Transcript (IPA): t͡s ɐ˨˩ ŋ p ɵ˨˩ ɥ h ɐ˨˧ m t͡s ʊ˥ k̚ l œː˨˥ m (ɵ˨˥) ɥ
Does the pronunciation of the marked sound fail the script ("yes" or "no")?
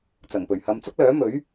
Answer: no